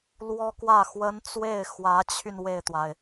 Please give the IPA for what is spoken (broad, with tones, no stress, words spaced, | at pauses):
lwɔ˥kwä˥˩xwə˥n t͡swe˥˩ɪ̯xwä˧˥t͡ɕʰy˧n we˥˩ɪ̯t̪wa˩ɪ̯